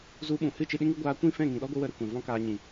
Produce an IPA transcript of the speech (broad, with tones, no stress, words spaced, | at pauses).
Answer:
zu˧ɓũ˨ hɨ˦˨t͡ʃɨ˧ɗĩ˦ŋɨ˦ ɡʷaː˧kʷĩ˦˨fɛ̃˦˨ ŋĩ˨ɗɔ˦ɡʷɨ˧ wə˦ɾɛ˦ kʷɛ̃˨vɔ̃˦kaː˧ ɲĩ˨